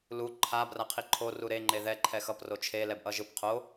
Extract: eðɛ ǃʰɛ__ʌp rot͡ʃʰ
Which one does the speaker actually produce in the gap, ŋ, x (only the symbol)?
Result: x